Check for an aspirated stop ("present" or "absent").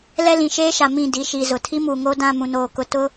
present